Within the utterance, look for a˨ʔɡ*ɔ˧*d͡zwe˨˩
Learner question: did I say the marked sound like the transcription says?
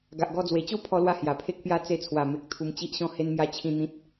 yes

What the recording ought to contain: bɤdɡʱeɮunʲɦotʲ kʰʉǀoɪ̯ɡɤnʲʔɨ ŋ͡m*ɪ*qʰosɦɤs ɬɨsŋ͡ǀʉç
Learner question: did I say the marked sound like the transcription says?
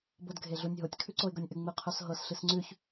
no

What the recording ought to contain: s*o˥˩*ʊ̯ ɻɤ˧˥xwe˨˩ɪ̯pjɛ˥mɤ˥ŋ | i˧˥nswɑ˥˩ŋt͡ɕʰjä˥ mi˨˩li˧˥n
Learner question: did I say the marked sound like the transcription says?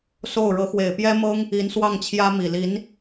yes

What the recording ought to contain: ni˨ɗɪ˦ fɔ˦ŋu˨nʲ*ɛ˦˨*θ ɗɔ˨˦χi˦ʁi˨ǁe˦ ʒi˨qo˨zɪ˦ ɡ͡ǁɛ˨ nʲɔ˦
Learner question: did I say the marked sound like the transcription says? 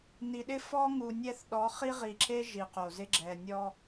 yes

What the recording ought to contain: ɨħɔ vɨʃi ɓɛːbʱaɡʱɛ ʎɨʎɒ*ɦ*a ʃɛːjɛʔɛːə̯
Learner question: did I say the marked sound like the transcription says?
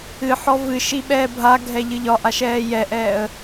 no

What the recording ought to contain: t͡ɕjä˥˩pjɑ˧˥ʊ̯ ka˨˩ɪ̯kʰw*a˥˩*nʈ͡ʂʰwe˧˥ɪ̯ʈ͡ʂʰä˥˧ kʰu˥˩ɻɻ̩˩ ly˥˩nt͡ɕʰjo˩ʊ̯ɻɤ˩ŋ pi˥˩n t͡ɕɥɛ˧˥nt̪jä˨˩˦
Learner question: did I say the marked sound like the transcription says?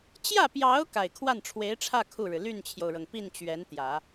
yes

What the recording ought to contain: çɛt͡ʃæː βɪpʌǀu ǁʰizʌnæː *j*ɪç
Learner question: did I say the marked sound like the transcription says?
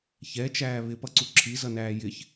yes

